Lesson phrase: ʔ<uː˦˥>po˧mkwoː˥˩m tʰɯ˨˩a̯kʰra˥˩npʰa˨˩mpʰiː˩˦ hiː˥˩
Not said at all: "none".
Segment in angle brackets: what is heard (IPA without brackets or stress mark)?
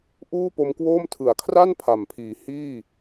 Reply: uː˥˩